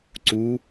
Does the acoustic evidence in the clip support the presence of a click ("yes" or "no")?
yes